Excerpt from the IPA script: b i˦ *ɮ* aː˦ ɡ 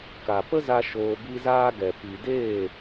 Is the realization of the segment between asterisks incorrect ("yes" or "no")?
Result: yes